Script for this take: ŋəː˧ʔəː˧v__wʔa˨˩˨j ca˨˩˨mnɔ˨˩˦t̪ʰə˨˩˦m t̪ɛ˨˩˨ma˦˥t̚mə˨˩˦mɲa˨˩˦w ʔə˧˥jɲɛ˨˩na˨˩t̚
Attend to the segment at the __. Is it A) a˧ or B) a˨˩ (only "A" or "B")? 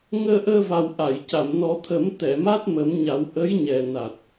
B